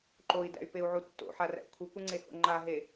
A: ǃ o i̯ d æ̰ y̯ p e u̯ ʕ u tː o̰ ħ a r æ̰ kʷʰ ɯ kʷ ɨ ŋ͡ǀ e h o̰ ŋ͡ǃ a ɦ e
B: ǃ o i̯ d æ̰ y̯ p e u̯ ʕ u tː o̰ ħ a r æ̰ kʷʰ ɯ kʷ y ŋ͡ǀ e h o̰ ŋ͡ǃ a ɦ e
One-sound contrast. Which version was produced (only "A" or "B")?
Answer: A